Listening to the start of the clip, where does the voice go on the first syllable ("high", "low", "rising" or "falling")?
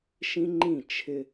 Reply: high